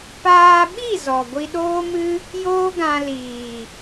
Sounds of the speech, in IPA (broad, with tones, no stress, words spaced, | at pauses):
paː˧ɓi˦˨ zɔ˨ɡʷi˧ɗoː˦mɨ˦ | joː˦ɡã˧liː˨